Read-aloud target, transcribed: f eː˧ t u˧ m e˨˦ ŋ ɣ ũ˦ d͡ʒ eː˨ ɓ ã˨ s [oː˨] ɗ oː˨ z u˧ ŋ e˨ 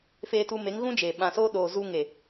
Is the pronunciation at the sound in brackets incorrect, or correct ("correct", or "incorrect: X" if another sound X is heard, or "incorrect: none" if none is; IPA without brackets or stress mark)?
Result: incorrect: oː˧